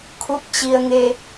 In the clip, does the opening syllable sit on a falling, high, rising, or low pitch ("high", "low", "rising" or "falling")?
rising